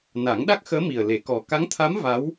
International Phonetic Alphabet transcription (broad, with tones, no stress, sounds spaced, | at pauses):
n a˨˩˦ ŋ ɗ a˦˥ k̚ x əː˧˥ m i˨˩ ə̯ l e˨˩˦ k ɔ˨˩ k a˧˥ ŋ t̪ʰ a˧˥ m v a˧˥ w